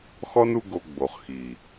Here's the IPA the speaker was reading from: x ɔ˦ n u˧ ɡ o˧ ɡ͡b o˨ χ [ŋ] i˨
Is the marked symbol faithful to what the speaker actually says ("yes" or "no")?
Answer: no